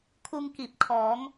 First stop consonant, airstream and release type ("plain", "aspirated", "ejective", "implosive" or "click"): aspirated